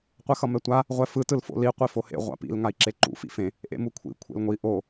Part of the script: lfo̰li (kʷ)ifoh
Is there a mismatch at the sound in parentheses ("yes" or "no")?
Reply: yes